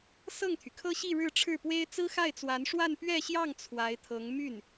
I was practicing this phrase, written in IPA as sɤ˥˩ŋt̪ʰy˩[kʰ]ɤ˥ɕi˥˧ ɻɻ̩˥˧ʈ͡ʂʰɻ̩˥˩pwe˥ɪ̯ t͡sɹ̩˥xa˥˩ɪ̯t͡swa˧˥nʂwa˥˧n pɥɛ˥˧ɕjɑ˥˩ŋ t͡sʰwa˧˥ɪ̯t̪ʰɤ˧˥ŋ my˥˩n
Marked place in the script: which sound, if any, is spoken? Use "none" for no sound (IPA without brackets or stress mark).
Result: kʰ